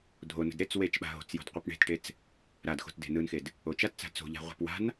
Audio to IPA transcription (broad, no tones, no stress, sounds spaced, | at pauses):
dʱ o n ə̤ d ɾ e t͡s w e t͡ʃ ɓ a̤ ɦ o̤ t͡s j o̤ d qʷ ɯ p ɳ e̤ t ʈ e t͡s | ɾ a d x o̤ t d e̤ n ɯ n x e d | o t͡ʃ a t t͡s a̤ t͡s o̤ ʎ a̤ ʁʷ ə̤ p w a̤ n